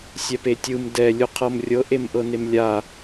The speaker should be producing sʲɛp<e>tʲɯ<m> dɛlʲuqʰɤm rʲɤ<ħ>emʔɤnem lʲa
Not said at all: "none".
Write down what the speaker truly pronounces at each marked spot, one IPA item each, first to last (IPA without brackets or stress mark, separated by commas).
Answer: e, m, ʔ